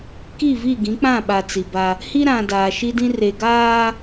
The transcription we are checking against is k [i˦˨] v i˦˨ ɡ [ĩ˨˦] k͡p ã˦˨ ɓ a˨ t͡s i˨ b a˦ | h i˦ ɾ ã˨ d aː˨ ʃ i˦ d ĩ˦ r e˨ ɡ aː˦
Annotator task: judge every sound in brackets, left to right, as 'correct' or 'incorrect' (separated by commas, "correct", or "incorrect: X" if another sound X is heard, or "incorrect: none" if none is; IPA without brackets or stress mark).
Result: correct, correct